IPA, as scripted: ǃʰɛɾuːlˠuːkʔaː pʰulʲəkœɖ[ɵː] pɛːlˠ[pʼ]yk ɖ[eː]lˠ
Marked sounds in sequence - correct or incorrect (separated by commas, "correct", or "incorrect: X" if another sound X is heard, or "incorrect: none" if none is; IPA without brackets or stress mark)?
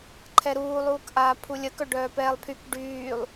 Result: incorrect: œː, incorrect: pʰ, incorrect: yː